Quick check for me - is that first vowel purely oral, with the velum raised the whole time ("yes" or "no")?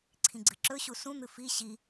no